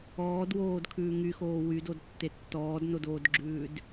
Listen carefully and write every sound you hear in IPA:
ɔː d w oː d kʰ ʉː ŋ y x oː w y d o d tː e tː ɔː d n o d oː d ɡ͡ǁ ʉː d

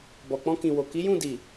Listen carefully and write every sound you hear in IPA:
b ɔ˨ k͡p ɔ̃˧ k ĩ˨ w o˨ k i˨˦ j ũ˦˨ d i˨

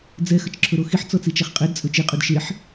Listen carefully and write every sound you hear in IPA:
d͡z ɛ x ə t͡ʃ ǁʰ ɵ ɾ o x i ħ t͡s ɔ t͡s i t͡ʃ ɛ χ qʼ ɛ d t͡sʼ ɵ t͡ʃ i qʼ ɵ d ʃ e ħ

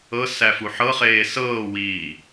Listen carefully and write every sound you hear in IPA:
ɤ s æ f u ħ ɤ χ eː s ɤː w iː

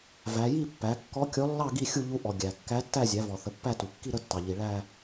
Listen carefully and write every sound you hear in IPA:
v æ˩˧ j i˥˧ pː æ˩˧ kː ɔ˧˥ kʲ ɔ˧˥ lː ɑ˥˧ ɡ i˥˧ xʲ u˥˧ ʎ u˧˥ ʔ ɔ˩ ɡʲ æ˩ kː æ˧˥ tː æ˥˧ zʲ æ˩˧ v ɔ˩ θ ə˩˧ pː æ˥˧ t u˩ kː i˥˧ ɾ ə˥˧ tː ɑ˩ ʎ i˩ ɭ æ˥˧

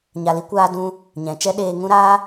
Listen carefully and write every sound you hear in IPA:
ɲ a˨ l i˧ kʷ aː˧ d ũ˧ | ɲ ɛ̃˨ t͡ʃ ɛ˦ ɗ eː˧ ŋ ũ˦ ɾ aː˦

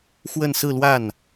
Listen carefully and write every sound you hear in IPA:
x w ə˥˧ n s ɹ̩˥˧ l w a˥˩ n

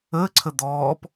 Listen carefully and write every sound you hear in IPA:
əː ǀʰ ə d̪ ɔː p

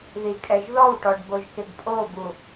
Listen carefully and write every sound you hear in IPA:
ð i kʼ ɛ ʒ ð ɔ w ʈ ɔ ɖ b o ʒ k ɪ ɡ pʼ o b u

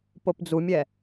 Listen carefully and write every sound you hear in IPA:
p o p d͡z u mʲ ɛ

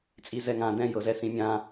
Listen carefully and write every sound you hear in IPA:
t͡sʼ i z ɛ ŋ ã d ɛ̃ j ɤ z ɛ s ĩ mʲ ã

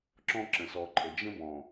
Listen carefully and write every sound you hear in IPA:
ǁ ɔ̃˦ ǁ ə̃˨ s ɔ˨ ǃʼ ə˨ d͡ʒ ə̃˦ b ɔ̃˨

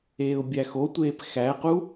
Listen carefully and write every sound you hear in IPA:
eː ʊ̯ bʲ æ x o tʷ eː p x æ q u

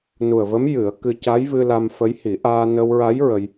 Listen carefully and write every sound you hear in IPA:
n u˨˩ ə̯ v ə˧˥ m j ɨ˨˩˦ ə̯ k ɨ˧ c a˧˥ j v ɨ˧ l a˧ m f ə˧˥ j h i˨˩˦ ʔ aː˧ n ə˧ w ɹ a˧˥ j ɹ ə˧ j

